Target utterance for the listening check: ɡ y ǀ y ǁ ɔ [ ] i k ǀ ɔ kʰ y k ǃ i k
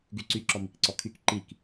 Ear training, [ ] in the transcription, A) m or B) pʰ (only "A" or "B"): A